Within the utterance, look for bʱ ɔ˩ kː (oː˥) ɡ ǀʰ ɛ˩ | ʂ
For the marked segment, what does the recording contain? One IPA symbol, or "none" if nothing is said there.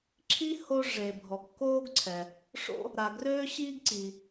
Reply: oː˥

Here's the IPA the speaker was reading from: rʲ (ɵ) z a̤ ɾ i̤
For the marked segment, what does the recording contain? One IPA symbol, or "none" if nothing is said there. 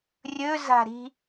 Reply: ɵ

